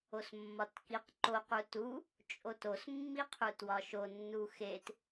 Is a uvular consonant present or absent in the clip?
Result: present